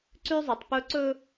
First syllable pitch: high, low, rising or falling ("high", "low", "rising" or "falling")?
high